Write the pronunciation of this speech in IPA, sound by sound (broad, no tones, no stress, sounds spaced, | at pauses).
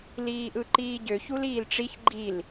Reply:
l iː ʔ ɯ ǃ iː ɟ ø ç u l iː l ʈ͡ʂ i ç ɡ͡ǃ i l